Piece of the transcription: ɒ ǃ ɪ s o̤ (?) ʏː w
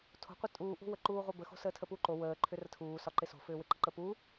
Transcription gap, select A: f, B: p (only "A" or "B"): A